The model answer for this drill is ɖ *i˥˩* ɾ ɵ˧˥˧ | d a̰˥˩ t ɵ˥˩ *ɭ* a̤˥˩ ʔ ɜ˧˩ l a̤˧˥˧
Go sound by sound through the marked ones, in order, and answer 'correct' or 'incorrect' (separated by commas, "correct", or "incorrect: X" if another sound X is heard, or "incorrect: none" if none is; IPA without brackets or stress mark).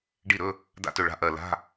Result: correct, correct